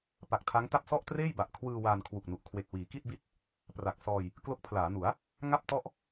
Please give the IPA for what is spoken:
p a˨˩ k̚ tʰ a˦˥ ŋ t a˥˩ p̚ s ɔ˥˩ ʔ t r eː˥˩ j b a˨˩ ʔ kʰ w ɯː˧ w aː˧ n kʰ w u˨˩ k̚ n u˨˩ ʔ kʰ w e˨˩ k̚ w iː˩˦ k i˥˩ t̚ b i˥˩ t̚ | p r a˨˩ k̚ s ɔː˧ j | k l o˦˥ k̚ pʰ l aː˩˦ n u˩˦ a̯ | ŋ a˥˩ p̚ t ɔ˥˩ ʔ

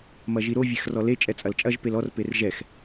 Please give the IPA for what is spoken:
m ɐ ʒ i ɾ o vʲ ɛ x r ɔ l e t͡ʃʼ ɛ t͡sʼ ɐ l t͡ʃʼ ɐ ʒ p e l ɔ r p e r ʒ ɛ x

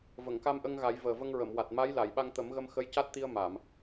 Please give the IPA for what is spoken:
v ə˨˩˨ ŋ k a˧ m ʔ ə˧ ŋ ɣ a˨˩˦ j v əː˨˩ v ə˧ ŋ ɹ ə˨˩˨ m w a˨˩ t̚ m a˧˥ j l a˨˩˨ j ɓ a˧ ŋ t̪ ə˨˩˦ m ɣ ə˧ m x ə˧˥ j c a˦˥ t̚ t̪ i˧ ə̯ m a˨˩˨ m

